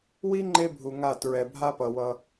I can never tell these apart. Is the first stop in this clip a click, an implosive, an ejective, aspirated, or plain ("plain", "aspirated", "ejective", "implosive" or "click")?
click